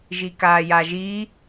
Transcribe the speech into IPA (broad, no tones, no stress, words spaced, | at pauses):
ʒikaːjaʒi